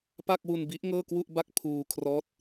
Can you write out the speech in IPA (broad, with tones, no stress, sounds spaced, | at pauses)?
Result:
p a˥˩ k̚ w u˧ n b i˦˥ ʔ ŋ ɤː˥˩ k w u˥˩ ʔ b a˥˩ k̚ pʰ uː˧ kʰ r ɔː˦˥ t̚